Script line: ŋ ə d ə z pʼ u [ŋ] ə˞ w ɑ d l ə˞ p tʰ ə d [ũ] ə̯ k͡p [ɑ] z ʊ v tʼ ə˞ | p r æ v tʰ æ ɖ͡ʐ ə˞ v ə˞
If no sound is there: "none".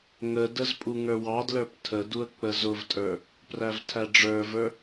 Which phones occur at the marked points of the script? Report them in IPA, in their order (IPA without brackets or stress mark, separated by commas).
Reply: ŋ, u, ə